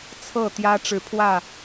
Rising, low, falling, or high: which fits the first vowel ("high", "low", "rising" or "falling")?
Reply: falling